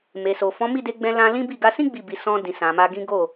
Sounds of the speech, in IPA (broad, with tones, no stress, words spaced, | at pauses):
me˨so˨ fɔ̃˨˦mi˦˨de˧ɡ͡bɛ̃˧ lã˧ lĩ˦bi˦˨ ɡa˧sĩ˦ ɡ͡bi˦˨bi˧ sɔ̃˧dĩ˨sã˨ ma˧ɡĩ˦ ɡo˦˨